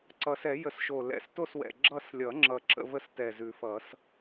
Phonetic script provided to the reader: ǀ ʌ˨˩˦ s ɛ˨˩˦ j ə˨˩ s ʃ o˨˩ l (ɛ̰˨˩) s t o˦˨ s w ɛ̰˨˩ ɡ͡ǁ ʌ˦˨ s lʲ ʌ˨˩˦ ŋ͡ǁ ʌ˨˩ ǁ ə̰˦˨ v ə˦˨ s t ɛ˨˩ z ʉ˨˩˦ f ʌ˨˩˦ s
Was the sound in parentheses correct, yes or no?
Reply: yes